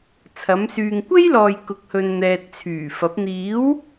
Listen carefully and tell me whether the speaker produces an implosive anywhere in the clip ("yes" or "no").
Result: no